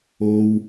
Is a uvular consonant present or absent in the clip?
absent